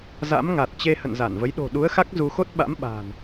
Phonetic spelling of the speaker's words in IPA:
z a̰˧˥ m ŋ a˨˩ t̚ t͡ɕ e˧ h ə̰˧˨ n z a˧˩ n v ə˨˦ j ɗ o̤˨˩ ɗ u˨˦ ə̯ x a˦˥ k̚ z u˧ x o˦˥ t̚ ɓ a̰˧˥ m ɓ a̤˨˩ n

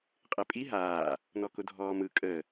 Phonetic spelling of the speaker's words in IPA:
qʼ e pʼ i ɦ aː | n ɔ k ʊ dʱ ɔː m ɯ kʼ ə

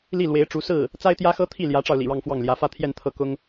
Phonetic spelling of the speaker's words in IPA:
l i˥˩ l w e˧˥ ɪ̯ ʈ͡ʂ u˧˥ s ɹ̩˥˩ | t͡s a˥ ɪ̯ t̪ j ä˥ x ɤ˥ t̪ʰ i˥˩ l j ä˧˥ ʈ͡ʂ ɑ˧ ʊ̯ l ḭ˨˩ ɻ ɑ˥˧ ŋ f w ɑ˥˩ ŋ l j ä˧˥ f ä˥ t̪ʰ j ɛ˥˧ n t̪ʰ ɤ˥˩ k ʊ˥ ŋ

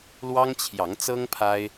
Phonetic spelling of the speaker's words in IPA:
l w ɑ˦ ŋ t͡ɕʰ j ɑ˨˦ ŋ t͡s ɤ˦ ŋ pʰ a˦ ɪ̯

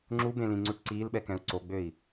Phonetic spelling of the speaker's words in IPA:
ŋ͡ǁ u b ẽ l ĩ ŋ͡ǀ u ʈ ǀ iː l ɓ ɛ k ɛ̃ u̯ ǀ o ɡ͡b ø i̯

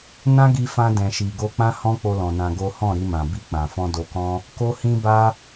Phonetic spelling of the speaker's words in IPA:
n ã˦ ɡ i˧ f ã˧ d ɛ̃˨ ʃ i˨ ɡ o˧ k͡p ã˦ h ɔ̃˦ k͡p o˧ l ɔ̃˨ n ã˧ ɡ o˦ h ɔ̃˦˨ ɾ i˧ m ã˨ b i˧ k͡p ã˨ f ɔ̃˧ d o˧ k ɔ̃˦ | k o˦ h ĩ˦ b a˦

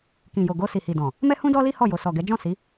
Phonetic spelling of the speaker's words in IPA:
k ĩ˨ j o˨ ɡ o˧ s i˨ h i˨ d ɔ̃˨ | m ɛ˦ h ũ˦ d ɔ˦ l i˦ h ɔ˦˨ j o˨ s ɔ˨ ɡ ɛ˨˦ d͡ʒ ɔ̃˦˨ s i˨˦

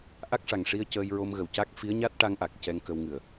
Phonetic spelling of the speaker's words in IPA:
ʔ a˦˥ k̚ ʂ a˨˩ ŋ ʂ i˧ ə̯ c əː˧ j ɹ o˧ m ɣ ə˨˩ w c a˦˥ k̚ f i˧˥ ə̯ ɲ a˦˥ t̚ ʈ a˧ ŋ ʔ a˨˩ k̚ c ɛ˧ ŋ k ə˧ w ŋ ɨ˨˩ ə̯

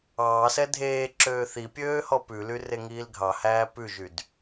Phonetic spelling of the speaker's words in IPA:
ɑː s ɛ dʱ eː ǁ øː θ i pʲ øː h ɔ p ʉ l y r e ŋ iː l ɡʱ ɑ h æː p ʉ ʒ y d

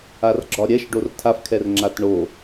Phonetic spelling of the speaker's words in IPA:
a r ɡ͡ǁ ɒ ɾʲ ɛ ʃ ɖ o r tʰ a f kʰ ɛ r ŋ͡ǁ a t ɳ o

